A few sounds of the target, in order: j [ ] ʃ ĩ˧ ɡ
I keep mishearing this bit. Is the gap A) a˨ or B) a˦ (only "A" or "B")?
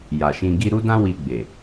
A